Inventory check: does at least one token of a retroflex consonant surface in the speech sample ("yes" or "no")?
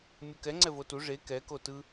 yes